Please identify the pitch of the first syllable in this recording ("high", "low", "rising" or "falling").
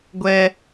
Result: high